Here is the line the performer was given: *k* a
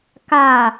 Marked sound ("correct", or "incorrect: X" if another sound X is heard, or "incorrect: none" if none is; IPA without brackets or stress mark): correct